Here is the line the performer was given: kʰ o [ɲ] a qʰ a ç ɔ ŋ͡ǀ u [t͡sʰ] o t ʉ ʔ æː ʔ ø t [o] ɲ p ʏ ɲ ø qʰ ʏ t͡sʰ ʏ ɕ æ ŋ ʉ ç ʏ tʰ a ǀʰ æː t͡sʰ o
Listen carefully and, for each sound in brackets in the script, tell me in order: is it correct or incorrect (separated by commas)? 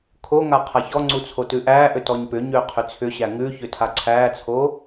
incorrect, correct, incorrect